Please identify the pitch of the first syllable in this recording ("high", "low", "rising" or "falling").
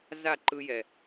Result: falling